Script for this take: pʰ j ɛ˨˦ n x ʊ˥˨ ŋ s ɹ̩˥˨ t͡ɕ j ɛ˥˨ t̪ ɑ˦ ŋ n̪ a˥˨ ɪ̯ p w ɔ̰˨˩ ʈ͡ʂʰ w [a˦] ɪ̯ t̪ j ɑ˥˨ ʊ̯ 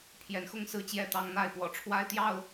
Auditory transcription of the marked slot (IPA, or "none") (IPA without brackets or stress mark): a˦